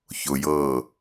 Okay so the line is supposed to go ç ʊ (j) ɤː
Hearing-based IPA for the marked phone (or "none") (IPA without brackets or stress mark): j